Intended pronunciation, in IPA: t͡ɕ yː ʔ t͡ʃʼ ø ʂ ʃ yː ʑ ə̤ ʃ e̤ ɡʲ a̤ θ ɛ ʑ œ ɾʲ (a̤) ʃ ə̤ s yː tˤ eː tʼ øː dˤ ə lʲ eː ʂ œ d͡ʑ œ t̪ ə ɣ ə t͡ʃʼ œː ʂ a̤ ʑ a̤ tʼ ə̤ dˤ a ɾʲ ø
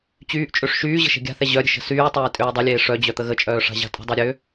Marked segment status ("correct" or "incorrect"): incorrect